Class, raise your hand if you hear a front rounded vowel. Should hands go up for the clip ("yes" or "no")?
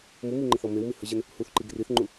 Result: no